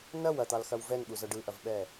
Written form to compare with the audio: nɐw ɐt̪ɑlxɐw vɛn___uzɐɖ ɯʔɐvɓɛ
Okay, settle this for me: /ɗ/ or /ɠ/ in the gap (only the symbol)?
ɠ